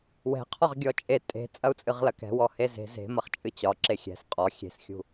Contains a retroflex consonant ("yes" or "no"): no